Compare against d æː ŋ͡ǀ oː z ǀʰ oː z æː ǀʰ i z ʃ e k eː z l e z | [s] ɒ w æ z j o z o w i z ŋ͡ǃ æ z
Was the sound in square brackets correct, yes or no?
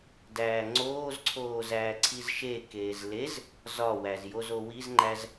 no